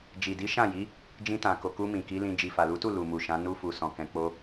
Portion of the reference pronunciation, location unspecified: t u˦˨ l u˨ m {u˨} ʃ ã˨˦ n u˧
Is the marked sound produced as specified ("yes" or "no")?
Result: yes